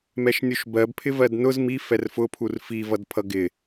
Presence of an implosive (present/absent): absent